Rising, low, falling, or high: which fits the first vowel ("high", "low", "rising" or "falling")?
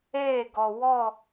falling